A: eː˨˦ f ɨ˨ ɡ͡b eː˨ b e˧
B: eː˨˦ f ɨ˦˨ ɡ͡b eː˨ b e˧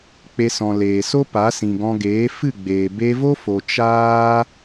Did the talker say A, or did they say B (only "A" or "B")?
B